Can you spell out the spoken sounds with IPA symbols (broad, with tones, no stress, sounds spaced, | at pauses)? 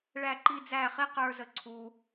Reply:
ɭ æ˧ ǃ i˧ d͡z æ˦˨ χ i˦ q ə˞˧ z ə˧ ǀʰ u˧